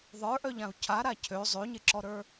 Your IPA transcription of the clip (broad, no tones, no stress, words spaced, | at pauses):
ðˤə˞ʔœʎãu̯ cʰaɾa cʰø zˤøɲeǁɔɾə˞